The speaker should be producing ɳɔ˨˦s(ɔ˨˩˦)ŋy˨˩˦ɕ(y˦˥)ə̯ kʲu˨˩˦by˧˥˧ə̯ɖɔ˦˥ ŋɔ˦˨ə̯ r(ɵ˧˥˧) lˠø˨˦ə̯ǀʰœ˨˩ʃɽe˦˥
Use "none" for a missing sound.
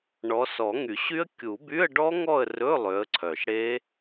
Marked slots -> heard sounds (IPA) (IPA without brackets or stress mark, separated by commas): ɔ˨˩˦, y˦˥, ɵ˧˥˧